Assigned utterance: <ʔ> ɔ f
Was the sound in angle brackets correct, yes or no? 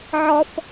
no